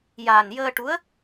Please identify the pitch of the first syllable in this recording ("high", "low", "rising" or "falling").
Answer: low